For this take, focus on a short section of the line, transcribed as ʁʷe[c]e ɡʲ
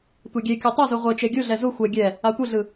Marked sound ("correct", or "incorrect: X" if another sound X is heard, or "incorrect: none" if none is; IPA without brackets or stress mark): incorrect: t͡ʃ